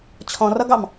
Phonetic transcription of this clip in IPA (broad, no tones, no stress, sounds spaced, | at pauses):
t͡ɕʰ ɔ̃ r ʌ ɡ ɑ m